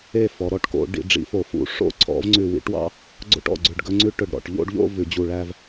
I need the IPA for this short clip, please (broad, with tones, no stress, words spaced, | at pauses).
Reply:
e˧˩ fɔ˩˧ɾɔ˧˩ʈko̰˧˩˧ ɖḭ˩˧ɖ͡ʐḭ˩˧fo˧˩˧fṵ˧˩˧ ʂo̰˥ ǀʰɔ̰˧˩˧vŋ͡ǀʉ˧˩wḭ˧˩˧ʈwɑ̰˥˧ | ɡ͡ǀo̰˥˧ʈɔ̰˩˧˩ɡ͡ǀʉ˧˩ɖ ɡɵ˥ŋ͡ǀʉ˥ ʈɵ˧˩ɖɾɔ̰˧˩ʈ ʎo̰˥˧ɖʎo̰˥˧ vʉ˧˩˧ d͡ʑu˧˩ɭæ˥˧v